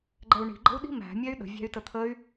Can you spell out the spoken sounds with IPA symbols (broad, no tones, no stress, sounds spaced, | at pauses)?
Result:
ɡ͡ǃ ɛ u̯ ɳ i̤ ɡ͡ǃ ə̤ u̯ ɗ i̤ m æ̤ mʲ ɛ y̯ ɗ ə̤ vʲ æ̤ y̯ t ə t̪ʰ ə y̯